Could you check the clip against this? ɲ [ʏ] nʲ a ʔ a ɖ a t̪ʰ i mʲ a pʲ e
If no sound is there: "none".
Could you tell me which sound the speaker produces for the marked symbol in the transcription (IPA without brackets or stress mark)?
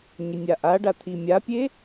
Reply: ʏ